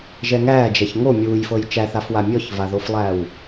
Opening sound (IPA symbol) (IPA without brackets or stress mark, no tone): ʒ